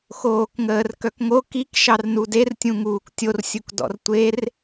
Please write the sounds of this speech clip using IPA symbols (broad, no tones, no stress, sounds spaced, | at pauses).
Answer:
x oː k ŋ əː r k œ k ŋ o k i k ʃ ɑ r n u d e r tʲ ũ ŋ uː k tʲ o r sʲ u k d ɔ̰ r tʷ e r